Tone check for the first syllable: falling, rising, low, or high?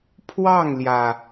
falling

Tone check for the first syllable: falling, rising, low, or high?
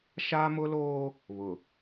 high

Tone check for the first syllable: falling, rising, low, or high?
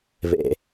low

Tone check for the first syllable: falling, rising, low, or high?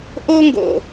high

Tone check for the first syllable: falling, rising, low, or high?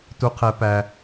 high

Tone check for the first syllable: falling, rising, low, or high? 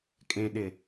low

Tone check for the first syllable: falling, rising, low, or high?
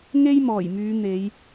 high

